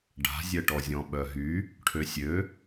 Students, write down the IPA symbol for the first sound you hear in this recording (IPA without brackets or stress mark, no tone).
ɖ